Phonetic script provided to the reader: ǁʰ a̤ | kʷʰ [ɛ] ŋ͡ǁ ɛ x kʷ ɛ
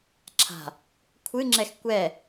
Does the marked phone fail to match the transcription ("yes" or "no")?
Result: yes